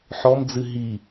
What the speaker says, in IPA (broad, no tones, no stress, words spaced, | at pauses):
ħɔmd͡zɨ ɦi